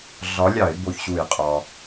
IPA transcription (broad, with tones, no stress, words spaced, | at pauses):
ɮɒ˨˥lʲɑ˧˩˧ɪ̯ bo˧˩çɕu˧˩˧jqʼɒ˩